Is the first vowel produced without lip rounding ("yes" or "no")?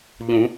no